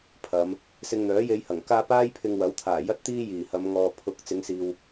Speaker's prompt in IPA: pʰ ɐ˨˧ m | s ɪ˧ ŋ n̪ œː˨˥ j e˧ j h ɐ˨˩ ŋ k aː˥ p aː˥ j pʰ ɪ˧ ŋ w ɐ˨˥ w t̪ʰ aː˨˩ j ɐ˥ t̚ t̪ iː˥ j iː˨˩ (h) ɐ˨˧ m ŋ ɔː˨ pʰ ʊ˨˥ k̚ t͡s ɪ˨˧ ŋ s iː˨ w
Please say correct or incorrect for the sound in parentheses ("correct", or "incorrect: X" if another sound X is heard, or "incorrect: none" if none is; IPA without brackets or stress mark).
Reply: correct